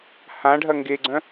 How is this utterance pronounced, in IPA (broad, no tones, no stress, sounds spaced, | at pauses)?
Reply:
h ã ɖʱ ɐ ŋ ɡ e ɡ͡ǀ œ̃